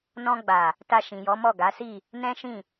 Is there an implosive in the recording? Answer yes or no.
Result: no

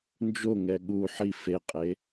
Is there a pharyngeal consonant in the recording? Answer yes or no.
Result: yes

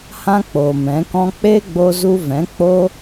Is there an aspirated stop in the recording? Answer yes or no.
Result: no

